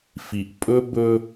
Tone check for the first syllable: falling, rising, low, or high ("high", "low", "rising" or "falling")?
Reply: low